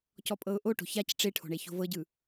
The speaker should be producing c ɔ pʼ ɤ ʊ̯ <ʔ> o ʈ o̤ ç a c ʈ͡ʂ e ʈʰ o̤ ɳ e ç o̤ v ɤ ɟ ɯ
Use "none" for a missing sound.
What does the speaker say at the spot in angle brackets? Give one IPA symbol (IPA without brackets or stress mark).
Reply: ʔ